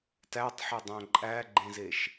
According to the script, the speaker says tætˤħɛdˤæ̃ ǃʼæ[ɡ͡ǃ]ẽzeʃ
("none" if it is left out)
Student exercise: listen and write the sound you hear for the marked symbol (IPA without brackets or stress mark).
ɡ͡ǃ